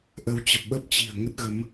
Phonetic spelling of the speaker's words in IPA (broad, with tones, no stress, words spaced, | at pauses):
ʔə˨˦wt͡ɕə˨˩p̚ ɓə˦˥p̚t͡ɕi̤˨˩ə̯ ŋə˦˥t̚ɣə˨˦m